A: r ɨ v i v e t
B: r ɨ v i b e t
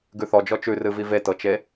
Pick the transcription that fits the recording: A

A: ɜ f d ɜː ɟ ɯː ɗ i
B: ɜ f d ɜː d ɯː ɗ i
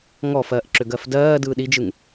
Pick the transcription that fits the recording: B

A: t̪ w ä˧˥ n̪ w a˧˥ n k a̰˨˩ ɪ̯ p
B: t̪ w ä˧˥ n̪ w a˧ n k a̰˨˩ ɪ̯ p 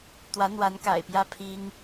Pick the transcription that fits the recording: A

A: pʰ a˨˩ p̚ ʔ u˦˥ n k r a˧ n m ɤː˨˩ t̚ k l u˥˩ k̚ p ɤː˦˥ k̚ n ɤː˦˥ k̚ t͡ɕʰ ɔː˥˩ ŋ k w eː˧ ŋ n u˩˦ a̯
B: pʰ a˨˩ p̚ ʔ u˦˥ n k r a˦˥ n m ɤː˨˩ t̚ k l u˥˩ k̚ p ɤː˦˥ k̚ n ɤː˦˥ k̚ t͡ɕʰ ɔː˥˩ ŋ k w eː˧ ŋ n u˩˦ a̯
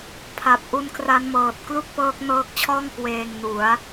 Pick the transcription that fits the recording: B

